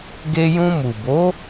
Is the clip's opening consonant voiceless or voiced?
voiced